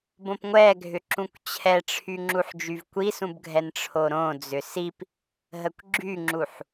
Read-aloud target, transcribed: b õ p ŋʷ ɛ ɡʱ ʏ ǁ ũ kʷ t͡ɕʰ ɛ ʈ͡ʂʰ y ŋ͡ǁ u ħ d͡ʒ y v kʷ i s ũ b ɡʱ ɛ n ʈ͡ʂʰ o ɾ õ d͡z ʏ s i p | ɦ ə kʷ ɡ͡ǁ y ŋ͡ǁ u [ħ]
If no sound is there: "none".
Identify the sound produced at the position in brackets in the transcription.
ħ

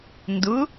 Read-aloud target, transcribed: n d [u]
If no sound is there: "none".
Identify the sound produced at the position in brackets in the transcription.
ʊ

